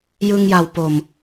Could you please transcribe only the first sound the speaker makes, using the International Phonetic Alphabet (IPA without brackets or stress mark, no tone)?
j